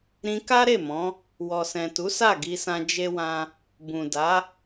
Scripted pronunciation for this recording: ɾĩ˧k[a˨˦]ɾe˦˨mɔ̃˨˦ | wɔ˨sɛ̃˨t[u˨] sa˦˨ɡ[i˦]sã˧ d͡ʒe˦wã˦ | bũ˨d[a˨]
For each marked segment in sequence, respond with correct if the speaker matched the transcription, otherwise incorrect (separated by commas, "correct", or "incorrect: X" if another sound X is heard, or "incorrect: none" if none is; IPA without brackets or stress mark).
incorrect: a˦, incorrect: u˨˦, incorrect: i˧, incorrect: a˨˦